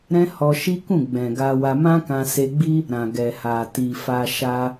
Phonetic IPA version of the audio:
ɾɛ̃˦ hɔ˧ʃi˦ kũ˦˨ɡ͡bɛ̃˨ɡa˧wa˧ mã˦kã˧se˧ɡ͡bi˦ | ɾã˨ɡɛ˨ ha˨ ti˨fa˧ ʃa˦

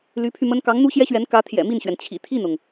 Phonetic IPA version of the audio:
ly˧˥pʰy˧ mə˥n kɑ˧˥ŋn̪u˥ɕjɛ˥ɕɥɛ˧˥n kä˧˥ t̪ʰjɛ̰˨˩mi˥˩nɕɥɛ˩n t͡ɕʰḭ˨˩t̪ʰi˥˩nʊ˩ŋ

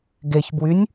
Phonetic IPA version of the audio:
ɡeçbwynʲ

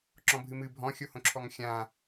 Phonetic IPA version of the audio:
ǁɔ̃bʱɨmɨ bʱɔ̃xʲohõǁʰɔŋ xʲã

